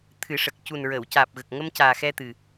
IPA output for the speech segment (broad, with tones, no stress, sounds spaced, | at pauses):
t̪ʰ ɨ˨˩˦ ʂ ə˨˩ k̚ c u˨˩ n ɹ əː˨˩˨ w c aː˨˩ p̚ ɣ ə˨˩ k̚ ŋ ə˧ m c aː˨˩ x ɛ˧ t̪ ɨ˨˩